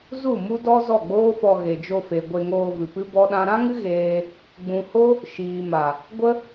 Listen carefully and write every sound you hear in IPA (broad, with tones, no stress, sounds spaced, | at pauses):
z u˦˨ m u˦ d ɔ˦ z ɔ˦˨ ɡ͡b oː˦ f ɔ˧ ɣ e˨ d͡ʒ o˧ f e˨ ɡʷ e˧ ŋ oː˧ v ɨ˨ p ɨ˦ b ɔ˦ ɗ ã˦ ɾ ã˦ ŋ ɨ˦ ɣ eː˦ | ɡ͡b ũ˨ h o˦ | ʃ iː˨ m a˨ | ɡʷ ə˦